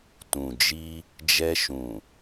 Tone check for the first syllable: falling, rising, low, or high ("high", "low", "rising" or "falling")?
low